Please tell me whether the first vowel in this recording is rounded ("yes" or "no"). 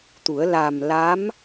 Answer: yes